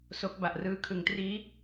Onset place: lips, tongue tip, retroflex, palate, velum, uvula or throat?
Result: tongue tip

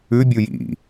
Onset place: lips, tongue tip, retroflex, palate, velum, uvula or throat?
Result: lips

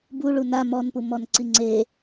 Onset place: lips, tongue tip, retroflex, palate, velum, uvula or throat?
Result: lips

